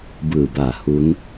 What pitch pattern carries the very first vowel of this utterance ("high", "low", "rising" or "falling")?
low